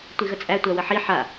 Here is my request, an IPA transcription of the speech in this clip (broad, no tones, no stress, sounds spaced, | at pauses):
tʷ i ɣ ə t͡sʼ æ tʷ æ w ə ħ i ħ a